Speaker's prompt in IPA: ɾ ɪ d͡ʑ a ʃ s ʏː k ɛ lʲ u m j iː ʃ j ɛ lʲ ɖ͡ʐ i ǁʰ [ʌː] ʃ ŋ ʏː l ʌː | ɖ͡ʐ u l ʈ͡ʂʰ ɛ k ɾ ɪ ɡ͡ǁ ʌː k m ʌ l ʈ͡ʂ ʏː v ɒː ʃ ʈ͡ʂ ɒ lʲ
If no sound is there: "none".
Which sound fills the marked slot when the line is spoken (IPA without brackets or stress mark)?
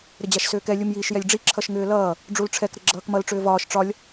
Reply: ʌ